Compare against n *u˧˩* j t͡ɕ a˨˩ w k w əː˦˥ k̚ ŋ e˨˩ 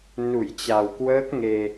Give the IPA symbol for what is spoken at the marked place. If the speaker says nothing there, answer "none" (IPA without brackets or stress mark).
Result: u˧˩